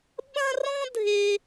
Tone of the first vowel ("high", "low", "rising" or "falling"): high